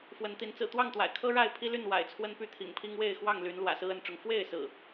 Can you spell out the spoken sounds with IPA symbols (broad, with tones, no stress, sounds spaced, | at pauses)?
f w ə˨˦ n t̪ i˨˦ n t͡s ɹ̩˨˩ t̪ w ɑ˥˨ ŋ t̪ w a̰˨˩ ɪ̯ kʰ ɤ˦ ɻ a˥˨ ɪ̯ pʰ i˦ l y˥˨ n w a̰˨˩ ɪ̯ t͡sʰ w ə˦ n p y˥˨ t̪ʰ ḭ˨˩ ŋ pʰ i˦ ŋ w e˥˨ ɪ̯ x w ɑ˥˨ ŋ l y˨˦ n l w ä̰˨˩ s ɹ̩˦ ə˨˦ n ʈ͡ʂ ʊ˨˦ ŋ f w e˥˨ ɪ̯ s ɹ̩˨˩